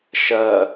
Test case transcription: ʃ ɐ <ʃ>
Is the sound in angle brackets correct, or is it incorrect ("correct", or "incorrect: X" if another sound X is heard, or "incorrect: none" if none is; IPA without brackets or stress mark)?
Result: incorrect: none